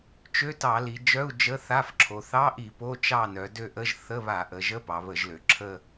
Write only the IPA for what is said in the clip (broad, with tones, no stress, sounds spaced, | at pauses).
t͡ʃ ø˧˥˧ t ɑ˧˩˧ l i˩˧ d͡ʒ œ˧˥˧ u̯ d͡ʒ ə˧˥˧ θ a˧˥˧ f ǁʰ o˩˧ θ ɑ˧˥˧ ʔ i˧˩˧ p o˧˥˧ t͡ʃ ɑ˦˨ n œ˩˧ d ø˦˨ ʔ ə˧˥˧ ʒ θ ə˧˥˧ β a˧˩˧ ʔ ə˩˧ ʒ ə˧˥˧ p ɑ˩˧ β ə˧˩˧ ʒ l ø˩˧ ǁʰ ə˦˨